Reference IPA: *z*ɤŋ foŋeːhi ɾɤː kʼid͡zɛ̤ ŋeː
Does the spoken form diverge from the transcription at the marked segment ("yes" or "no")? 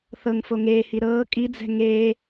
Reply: yes